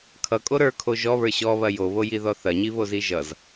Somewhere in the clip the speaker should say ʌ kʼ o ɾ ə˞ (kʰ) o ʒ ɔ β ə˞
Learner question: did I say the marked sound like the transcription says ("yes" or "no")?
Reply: yes